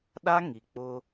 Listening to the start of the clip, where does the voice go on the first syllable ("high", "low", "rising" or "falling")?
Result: high